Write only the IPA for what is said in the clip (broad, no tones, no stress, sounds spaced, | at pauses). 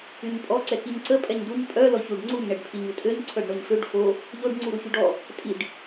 y ɲ pʼ ɔ ǀ ɛ k i ɲ ǀ ə pʼ ɛ ɲ d u ɲ pʼ œ l ɔ ç u ɖ ŋ͡ǀ u ɲ ɳ ɛ ɖ pʰ i ɲ u tʼ ø ɲ ǀʰ œ ɖ ɳ o ɲ f ø ɖ f o | ʎ o ɖ ŋ͡ǀ u ɾ u ç y ɖ ɔ | tʼ i ɖ